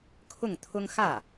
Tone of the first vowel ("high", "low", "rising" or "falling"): falling